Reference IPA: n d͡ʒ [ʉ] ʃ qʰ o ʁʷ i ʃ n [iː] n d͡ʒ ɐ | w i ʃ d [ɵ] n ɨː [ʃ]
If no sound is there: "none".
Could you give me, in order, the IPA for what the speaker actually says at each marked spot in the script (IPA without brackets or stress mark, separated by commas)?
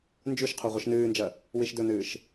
ʉ, ɨː, ɵ, ʃ